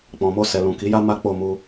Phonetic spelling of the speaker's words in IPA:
k͡p ɔ̃˨ m o˧ s ɛ˨ l ũ˨ k i˨˦ j a˦ m a˦ k͡p o˦˨ m u˧

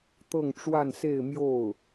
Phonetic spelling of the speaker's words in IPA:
t̪ ɤ˥˧ ŋ ʈ͡ʂ w a˥˧ n s e˥˧ ɪ̯ m j o˥˩ ʊ̯

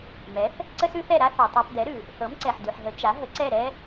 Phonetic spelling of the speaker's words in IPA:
m ɛ˩˥ θ | ǀ ə˥ s ʉ˥ θ ɛ˥˩ ɾ a˥ θ ɛ˩ tˤ a˧ p d ɛ˩˥ ɾ ʉ˩ | θ ɤ˩˥ m ǀ ɛ˩ ħ d ʉ˩ ħ ɦ ə˩˥ t͡ʃ a˩˥ ɦ ə˩˥ ǀ ɛ˥˩ ɾ ɛ˥

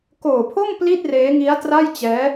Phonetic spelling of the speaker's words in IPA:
k oː˨˩ pʰ o˥˩ m p l i˥˩ t̚ r eː˦˥ ŋ i˦˥ a̯ t r a˥˩ j t͡ɕ ɛː˦˥

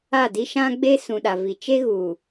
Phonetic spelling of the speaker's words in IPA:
a˦˨ d i˦ ʃ ã˦ ɡ͡b e˦ s ũ˨ ɗ a˨ v i˨ t͡ʃ e˦ ɣ uː˨

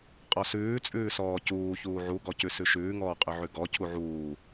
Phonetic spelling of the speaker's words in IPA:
qʼ ɔ s ʉː t͡sʼ ʉː s ɔː c uː ç uː ʕ u ɡ ɔ c ʉ s ʉ ʃ ʉː ŋ ɔː qʼ ʉ ʕ ʉ ɡ ɔ cʰ u ʕ uː

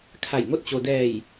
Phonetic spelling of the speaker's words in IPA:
kʰ a˧˩ j ŋ o˥˨ t̚ t͡ɕ o˧ d ɛː˧˩ j

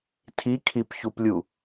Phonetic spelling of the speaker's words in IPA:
tʰ i kʰ i p ç u p lʲ u

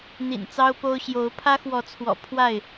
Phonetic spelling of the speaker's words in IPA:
n̪ ḭ˨˩ n t͡s ɑ˦ ʊ̯ p o˦ ʊ̯ ɕ j o˨˦ ʊ̯ pʰ ä˦ x w ɔ˨˦ t͡sʰ w ɔ̰˨˩ pʰ w a˥˨ ɪ̯

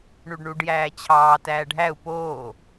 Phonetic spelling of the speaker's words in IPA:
ɳ u ɖ ɳ u ɖ j æː t͡ɕʰ ɑː t æː ɖʱ æ u̯ p oː

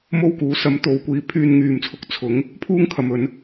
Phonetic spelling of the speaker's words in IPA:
m o˥ w k uː˨˥ s ɐ˨˧ m t̪ o˨˧ w kʷ iː˨˧ pʰ yː˧ n ŋ yː˨ m t͡sʰ ʊ˨˥ k̚ t͡sʰ ʊ˨˥ ŋ | pʰ uː˥ ŋ kʰ ɐ˨ m ɵ˨˧ n

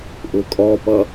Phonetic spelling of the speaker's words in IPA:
ʔ ʊ kʼ ɔ p ʌ

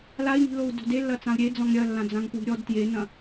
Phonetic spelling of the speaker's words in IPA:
l a i̯ n i̤ l o u̯ d o̤ d e lː ɐ t͡s ã u̯ ɾʲ e d͡z ɔ̃ ŋ ɾʲ ɐ lː ã d͡z ã ŋ p w i̤ ɾʲ ɔ d t j e n ɐ̃

